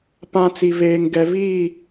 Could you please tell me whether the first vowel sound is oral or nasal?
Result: nasal